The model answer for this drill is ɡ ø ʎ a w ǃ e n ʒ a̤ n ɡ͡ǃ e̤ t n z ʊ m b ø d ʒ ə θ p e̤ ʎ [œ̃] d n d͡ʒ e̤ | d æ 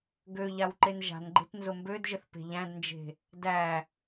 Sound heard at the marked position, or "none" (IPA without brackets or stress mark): æ̃